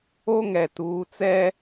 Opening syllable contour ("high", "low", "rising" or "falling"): high